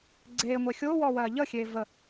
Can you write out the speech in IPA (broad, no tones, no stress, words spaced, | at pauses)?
ɡ͡ǀeːŋʷe xʲoːwɔːwɜː ʎəxʲeː və